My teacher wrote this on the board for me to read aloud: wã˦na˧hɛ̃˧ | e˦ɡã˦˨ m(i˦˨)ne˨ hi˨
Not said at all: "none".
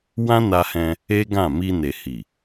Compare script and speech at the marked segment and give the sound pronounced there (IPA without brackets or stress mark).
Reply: i˧